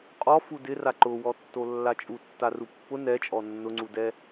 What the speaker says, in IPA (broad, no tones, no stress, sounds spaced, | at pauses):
qʼ ɔ f u d ɪ r a ǃ ʊ w ɔ tː o lː a t͡ʃʼ u tː a r u pː ʊ n ɛ t͡ʃʼ ɔ nː ʊ ŋ͡ǀ u d ɛ